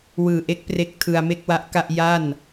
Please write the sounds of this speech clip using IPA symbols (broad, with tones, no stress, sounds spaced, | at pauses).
w ɯː˨˩ ʔ e˦˥ k̚ p r e˦˥ k̚ tʰ ɯ˧ a̯ m e˥˩ k̚ w a˦˥ ʔ k a˥˩ ʔ j a˥˩ n